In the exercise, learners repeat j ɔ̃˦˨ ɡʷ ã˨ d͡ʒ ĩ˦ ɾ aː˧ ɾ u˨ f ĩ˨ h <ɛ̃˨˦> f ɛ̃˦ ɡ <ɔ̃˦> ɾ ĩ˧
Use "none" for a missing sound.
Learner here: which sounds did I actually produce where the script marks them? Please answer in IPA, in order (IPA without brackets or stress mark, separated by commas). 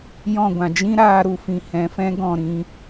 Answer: ɛ̃˨˦, ɔ̃˦˨